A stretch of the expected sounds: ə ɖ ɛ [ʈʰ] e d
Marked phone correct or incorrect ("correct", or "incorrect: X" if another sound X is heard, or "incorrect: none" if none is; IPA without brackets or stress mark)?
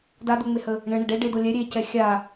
incorrect: ɖ